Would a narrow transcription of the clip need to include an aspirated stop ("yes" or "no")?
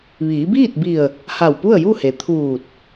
yes